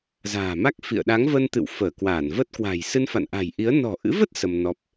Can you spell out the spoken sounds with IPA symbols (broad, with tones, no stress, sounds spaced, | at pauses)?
z a̤ː˨˩ m a˦˥ k̚ f ḭ˧˨ ə̯ ɗ a˨˦ ŋ v ə˧ n t̪ ɨ̰˧˨ w f əː˧˩ k w aː˧˩ n v ə˦˥ t̚ k w a̤˨˩ j s ɨ˧ n f a̰˧˨ n ʔ a̤˨˩ j ʔ i˨˦ ə̯ n ɔ̤˨˩ ʔ ɨ̰˧˥ v ə˦˥ t̚ s ə˧ m n ɔ˦˥ p̚